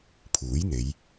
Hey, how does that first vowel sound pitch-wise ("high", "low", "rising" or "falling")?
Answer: rising